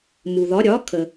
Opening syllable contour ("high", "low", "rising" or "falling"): low